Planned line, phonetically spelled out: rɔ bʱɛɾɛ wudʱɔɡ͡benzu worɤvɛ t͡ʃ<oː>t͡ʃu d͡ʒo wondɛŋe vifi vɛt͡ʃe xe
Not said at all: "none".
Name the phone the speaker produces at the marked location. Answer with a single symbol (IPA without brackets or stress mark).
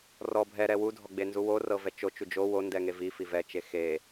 o